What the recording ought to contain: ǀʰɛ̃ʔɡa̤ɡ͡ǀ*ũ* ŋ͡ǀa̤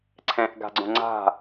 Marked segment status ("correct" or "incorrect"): incorrect